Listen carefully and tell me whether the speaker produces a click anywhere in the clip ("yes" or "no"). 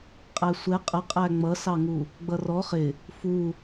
no